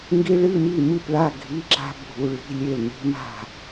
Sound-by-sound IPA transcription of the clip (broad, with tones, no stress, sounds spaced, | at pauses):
ŋ ɡ i˦˥ ɭ ɨ˧˥˧ m i˥˨ m ɨ˥˨ p ɭ a˧˥˧ ɡʱ i˧˥˧ ǁ a̤˦˥ bʱ u˧˥˧ ɭ i̤˧˥˧ lʲ e˥˨ l n i̤˦˥ m a̤˥˨